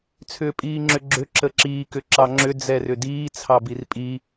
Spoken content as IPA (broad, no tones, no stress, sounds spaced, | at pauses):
t͡sʰ ʏː pʼ iː ŋ͡ǁ ʏ ɡ͡ǁ ʏ ǁ ə ǁ iː k ʏ ǁ ɑ ŋ͡ǁ ʏ d͡z ɛ r ʏ d iː t͡sʰ ɑ b i r pʼ i